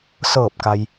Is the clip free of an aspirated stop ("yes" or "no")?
yes